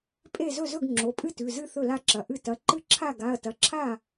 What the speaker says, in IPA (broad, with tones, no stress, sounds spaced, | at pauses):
pʼ e˥˩ z ɵ˥˩ z ɵ˥˩ ɡ ŋ͡ǁ o˩˧˩ pʼ ɨ˥˩ t ʉ˩˧˩ z ɨ˥˩ θ ɵ˥˩ l a˥˩ ǁ ɐ˩˧˩ ʔ ɨ˥˩ t ɐ˩˧˩ ǃ ɨ˥˩ ǁʰ a˥˩ ɡ a˩˧˩ ɐ̯ t ɐ˩˧˩ ǁʰ a˥˩